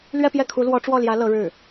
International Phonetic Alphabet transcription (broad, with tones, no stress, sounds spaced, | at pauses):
l ɥ ɛ˥˧ p j ɛ˥˩ kʰ u˧˥ l w ɔ˧˥ ʈ͡ʂ w ɔ˥˩ l j ä˧˥ l ɤ˧˥ ɻ ɻ̩˥˩